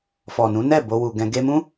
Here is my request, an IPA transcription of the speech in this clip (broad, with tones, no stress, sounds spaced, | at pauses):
f ɔ˨ n ũ˨˦ n ɛ˦˨ b o˧ w u˨ ɡ ɛ̃˧ ɡ e˧ m ũ˦